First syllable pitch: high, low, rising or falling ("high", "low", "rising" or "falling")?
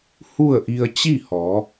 falling